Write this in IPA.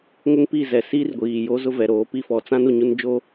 ŋʊ˦ŋpi˦˨zɛ˨ siː˦rɡʷiː˨jo˦zʊ˦ vɛ˨ɾoː˨˦pi˦fɔ˨ t͡sã˦nu˨ ɲu˦nd͡ʒo˦

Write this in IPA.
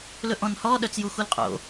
lɵʔɔ̃nhɔː ɗœt͡sjuxulqʼo̰

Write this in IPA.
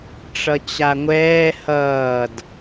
ʈ͡ʂʌt͡ɕaŋʷɛː hʌːd

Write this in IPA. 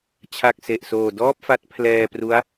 t͡ɕʰa˨˩k̚ se˨˩ʔsoː˨˩dɔː˥˩p̚fa˦˥t̚ pʰlɛː˧ pru˦˥a̯

